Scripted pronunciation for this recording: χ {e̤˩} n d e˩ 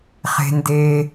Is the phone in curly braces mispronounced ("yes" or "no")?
no